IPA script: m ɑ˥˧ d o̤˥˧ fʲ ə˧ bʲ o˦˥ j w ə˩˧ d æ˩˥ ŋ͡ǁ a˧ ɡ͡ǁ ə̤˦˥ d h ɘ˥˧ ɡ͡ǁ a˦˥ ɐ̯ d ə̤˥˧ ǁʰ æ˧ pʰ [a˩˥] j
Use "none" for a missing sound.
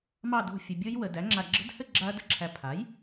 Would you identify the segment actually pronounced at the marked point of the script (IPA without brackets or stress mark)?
a˩˥